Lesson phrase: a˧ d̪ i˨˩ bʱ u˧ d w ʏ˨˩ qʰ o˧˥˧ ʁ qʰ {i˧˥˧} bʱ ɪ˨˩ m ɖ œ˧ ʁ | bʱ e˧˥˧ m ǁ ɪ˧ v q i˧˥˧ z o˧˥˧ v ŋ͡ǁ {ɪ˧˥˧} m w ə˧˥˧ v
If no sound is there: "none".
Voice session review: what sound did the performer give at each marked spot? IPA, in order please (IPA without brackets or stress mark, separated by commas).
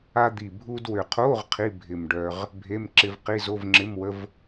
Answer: i˧˥˧, ɪ˧˥˧